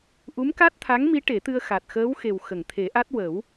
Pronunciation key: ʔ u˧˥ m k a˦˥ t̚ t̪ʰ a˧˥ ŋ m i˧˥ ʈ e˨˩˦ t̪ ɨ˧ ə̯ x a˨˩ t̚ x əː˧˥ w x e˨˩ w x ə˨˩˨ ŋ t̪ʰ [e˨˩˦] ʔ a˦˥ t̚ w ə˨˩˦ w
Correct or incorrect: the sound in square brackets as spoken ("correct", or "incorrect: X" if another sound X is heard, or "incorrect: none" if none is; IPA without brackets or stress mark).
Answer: correct